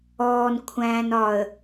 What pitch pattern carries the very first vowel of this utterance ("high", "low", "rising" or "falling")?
low